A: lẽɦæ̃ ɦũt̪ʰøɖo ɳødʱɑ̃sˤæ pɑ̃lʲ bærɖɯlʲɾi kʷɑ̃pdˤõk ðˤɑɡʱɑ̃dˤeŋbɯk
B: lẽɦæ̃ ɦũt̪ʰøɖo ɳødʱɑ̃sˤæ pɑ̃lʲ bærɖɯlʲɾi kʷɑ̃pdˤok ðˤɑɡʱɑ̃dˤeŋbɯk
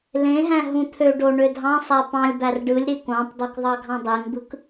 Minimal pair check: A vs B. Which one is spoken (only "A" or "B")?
B